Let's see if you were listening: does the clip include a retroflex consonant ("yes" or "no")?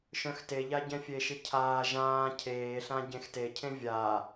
no